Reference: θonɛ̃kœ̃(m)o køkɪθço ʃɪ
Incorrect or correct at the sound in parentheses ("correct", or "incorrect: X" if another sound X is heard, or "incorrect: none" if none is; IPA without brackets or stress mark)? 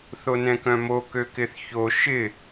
correct